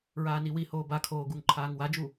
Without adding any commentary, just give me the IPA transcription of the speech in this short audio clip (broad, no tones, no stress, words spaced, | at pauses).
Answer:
ɹaːniwihoː bakʰoː ɡuŋǃʰaːŋwad͡ʒu